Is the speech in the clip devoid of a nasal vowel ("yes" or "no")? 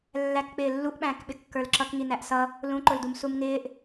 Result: no